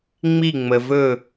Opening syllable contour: falling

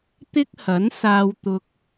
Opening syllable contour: high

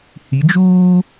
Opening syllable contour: rising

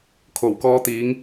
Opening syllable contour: low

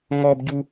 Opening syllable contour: high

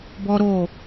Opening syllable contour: high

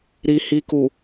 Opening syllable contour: low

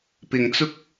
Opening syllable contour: low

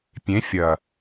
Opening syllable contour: rising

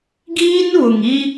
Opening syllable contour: high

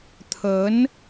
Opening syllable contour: rising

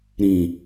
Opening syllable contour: low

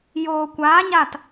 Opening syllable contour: low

